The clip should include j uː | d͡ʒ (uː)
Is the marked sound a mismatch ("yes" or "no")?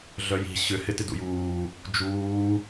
no